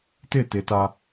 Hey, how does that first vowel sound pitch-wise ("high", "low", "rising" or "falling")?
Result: falling